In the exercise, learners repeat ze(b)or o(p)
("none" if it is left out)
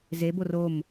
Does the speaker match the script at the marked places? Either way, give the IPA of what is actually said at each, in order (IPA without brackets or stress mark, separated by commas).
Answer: b, m